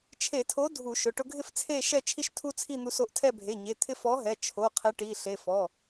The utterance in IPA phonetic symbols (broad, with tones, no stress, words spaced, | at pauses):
t͡ʃʰe˧˩˧tʰo˨˥ dʱu˧˩˧ʃʊ˩˧˩ ʈʊ˧ɡʱɪ˥˨ft͡sʰe˥˨ ʃɛ˥˨ t͡ʃʰi˧ʃtʰu˧ t͡sʰi˥˨n̪u˧so˧ʔtʰɛ˥˨ bʱe˩˧˩ɲe˩˧˩t̪ʰɪ˧ fɔ˨˥ɦɛ˩˧˩t͡ʃʰo˩˧˩ qʰe˨˥ʈi˩˧˩ɬe˩˧˩ fɔ˩˧˩